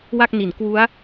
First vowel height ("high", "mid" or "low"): low